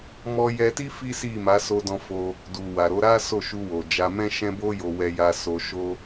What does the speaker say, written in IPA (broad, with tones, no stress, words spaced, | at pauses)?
mɔ˧jɛ˧ti˦ fi˦si˦˨ma˨˦ so˧dɔ̃˧fo˧ | du˨wa˨ɾo˧ ɾa˦ so˦˨ʃu˧wo˨d͡ʒa˧ mɛ̃˦ʃɛ̃˦bo˦jo˧ wɛ˧ja˧ so˧ʃo˦